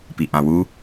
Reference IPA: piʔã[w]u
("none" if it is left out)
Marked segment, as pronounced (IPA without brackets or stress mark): w